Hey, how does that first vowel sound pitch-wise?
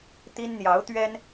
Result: high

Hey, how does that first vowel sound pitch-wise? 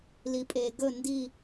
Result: low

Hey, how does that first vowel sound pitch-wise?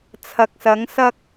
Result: low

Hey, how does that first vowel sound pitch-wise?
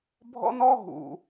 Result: high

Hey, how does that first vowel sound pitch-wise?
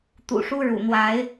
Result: low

